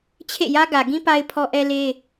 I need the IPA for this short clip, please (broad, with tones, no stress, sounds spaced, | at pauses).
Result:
t͡ɕʰ ḛ˦˨ j ä˦ ɡ ä˨ ɡ ĩ˦ p a˦ ɪ̯ pʰ ɔ˦ ʔ ɛ˦ l e˦